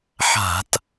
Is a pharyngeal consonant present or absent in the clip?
present